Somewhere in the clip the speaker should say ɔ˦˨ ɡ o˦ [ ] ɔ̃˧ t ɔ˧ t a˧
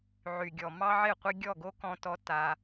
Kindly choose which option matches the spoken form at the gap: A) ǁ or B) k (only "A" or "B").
B